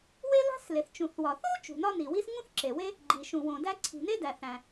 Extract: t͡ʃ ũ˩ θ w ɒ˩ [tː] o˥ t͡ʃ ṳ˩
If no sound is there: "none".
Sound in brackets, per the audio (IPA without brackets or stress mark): θ